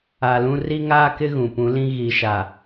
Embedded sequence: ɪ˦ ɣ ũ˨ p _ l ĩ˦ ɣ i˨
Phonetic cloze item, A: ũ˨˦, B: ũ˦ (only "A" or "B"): A